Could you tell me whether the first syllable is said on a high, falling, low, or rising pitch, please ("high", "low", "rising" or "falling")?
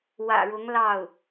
low